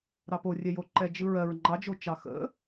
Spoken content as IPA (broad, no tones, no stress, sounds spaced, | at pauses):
ɾ ɑ p o rʲ ɛ j o ǃ ɛ d͡ʒ ɯ ɹ ɜ ɹ ŋ͡ǃ ɑ d͡ʒ o t͡ʃ ɑ x ə̰